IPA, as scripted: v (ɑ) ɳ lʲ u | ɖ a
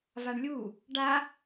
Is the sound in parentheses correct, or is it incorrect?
incorrect